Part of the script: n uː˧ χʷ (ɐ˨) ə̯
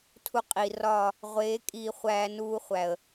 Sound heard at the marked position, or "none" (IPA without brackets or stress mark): æ˨